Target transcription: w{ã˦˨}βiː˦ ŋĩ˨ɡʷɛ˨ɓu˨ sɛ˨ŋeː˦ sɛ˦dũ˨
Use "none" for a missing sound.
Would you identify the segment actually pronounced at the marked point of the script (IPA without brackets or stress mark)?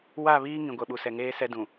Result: a˦˨